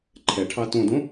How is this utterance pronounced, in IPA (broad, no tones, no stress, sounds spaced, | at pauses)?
ǃʰ ɛ ʈʰ ɑ t õ d õ